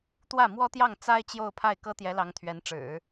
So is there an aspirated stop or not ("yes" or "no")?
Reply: yes